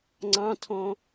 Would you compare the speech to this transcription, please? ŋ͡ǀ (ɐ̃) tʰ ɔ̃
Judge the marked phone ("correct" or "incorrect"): incorrect